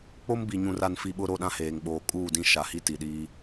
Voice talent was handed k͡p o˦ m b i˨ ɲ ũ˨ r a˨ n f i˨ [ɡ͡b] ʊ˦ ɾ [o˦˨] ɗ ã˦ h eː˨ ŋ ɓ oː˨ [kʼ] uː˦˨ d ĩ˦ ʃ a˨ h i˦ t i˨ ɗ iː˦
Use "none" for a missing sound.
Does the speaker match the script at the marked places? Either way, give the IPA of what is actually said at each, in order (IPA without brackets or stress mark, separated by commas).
ɓ, o˦˨, kʼ